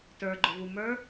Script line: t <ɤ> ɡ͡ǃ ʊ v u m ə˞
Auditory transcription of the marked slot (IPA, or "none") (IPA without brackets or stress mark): ə˞